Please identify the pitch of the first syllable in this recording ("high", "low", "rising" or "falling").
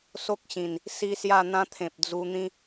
high